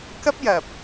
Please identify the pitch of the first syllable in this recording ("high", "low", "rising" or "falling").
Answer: high